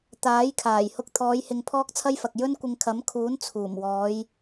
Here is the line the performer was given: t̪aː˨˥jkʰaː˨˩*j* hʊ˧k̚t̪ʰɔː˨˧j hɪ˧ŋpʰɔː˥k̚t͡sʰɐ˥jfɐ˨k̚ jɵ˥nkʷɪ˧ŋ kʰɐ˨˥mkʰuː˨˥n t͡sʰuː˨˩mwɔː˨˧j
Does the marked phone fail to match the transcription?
no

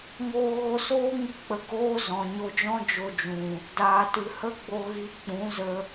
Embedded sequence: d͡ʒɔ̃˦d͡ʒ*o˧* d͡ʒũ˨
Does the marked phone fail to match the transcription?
no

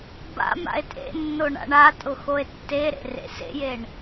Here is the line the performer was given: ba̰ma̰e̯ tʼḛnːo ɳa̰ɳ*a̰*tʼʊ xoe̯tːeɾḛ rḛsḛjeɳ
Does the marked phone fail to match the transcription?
yes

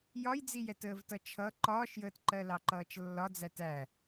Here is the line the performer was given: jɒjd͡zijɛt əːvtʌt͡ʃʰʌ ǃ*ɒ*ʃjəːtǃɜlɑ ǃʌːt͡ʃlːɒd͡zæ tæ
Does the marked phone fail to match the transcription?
yes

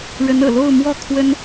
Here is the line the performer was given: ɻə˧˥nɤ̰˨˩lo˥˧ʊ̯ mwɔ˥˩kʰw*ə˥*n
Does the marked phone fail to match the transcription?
no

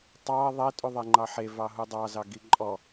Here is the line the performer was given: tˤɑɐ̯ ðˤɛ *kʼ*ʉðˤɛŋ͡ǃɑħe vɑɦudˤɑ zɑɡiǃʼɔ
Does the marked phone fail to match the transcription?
yes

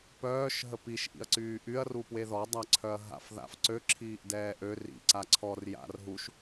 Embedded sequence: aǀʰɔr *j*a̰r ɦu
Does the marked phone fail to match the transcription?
no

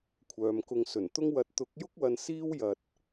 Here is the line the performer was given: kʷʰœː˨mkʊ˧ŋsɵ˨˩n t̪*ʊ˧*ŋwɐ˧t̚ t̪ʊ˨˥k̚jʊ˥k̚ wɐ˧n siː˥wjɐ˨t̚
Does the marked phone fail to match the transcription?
yes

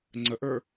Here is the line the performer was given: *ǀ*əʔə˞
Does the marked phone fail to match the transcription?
yes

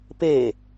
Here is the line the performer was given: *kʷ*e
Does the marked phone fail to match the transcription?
yes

